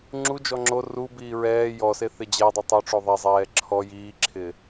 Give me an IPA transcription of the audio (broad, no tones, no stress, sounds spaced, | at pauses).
ŋ͡ǁ u d͡ʒ ɔ ŋ͡ǁ o r u b iː ɹ ɛː j ɔ s e θ ɪ d͡ʑ ɛ dˤ i tˤ o ʈ͡ʂ o ðˤ ɛ zˤ ɛː ǁʰ ɔ j iː ǁʰ ɪː